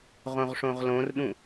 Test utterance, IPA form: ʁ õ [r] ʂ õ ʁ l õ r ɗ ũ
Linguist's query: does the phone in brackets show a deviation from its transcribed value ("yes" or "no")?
yes